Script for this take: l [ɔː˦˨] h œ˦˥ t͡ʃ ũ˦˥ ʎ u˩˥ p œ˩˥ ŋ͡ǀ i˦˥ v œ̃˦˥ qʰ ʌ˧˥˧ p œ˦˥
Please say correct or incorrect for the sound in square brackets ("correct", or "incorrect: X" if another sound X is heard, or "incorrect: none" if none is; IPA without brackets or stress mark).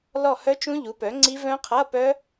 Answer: incorrect: ɔ˦˨